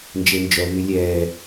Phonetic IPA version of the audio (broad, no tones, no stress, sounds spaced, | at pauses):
n d͡ʒ e n d͡ʒ œ β y lʲ ɛː